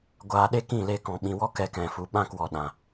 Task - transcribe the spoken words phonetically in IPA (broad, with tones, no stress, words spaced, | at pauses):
ɡʷaː˧ɗe˦ kĩ˦˨le˧ kɔ̃˨ɓĩ˨wɔ˦ kɛ˧kɛ̃˨ fu˨ɓã˦˨kwɔ˨ ɗã˨